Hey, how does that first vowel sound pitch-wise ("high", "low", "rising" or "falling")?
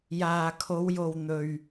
low